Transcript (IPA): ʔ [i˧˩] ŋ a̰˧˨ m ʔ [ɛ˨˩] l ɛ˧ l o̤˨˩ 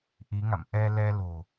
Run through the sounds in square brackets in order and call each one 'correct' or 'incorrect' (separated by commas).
incorrect, incorrect